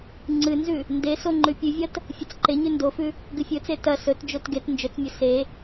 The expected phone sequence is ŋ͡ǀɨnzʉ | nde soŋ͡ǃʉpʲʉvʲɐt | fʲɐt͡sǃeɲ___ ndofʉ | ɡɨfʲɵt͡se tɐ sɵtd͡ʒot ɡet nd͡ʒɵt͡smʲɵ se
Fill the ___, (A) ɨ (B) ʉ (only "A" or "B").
B